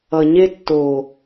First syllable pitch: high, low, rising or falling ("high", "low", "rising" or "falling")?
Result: low